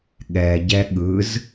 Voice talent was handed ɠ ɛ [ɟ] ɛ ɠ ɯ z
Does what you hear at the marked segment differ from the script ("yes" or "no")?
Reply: no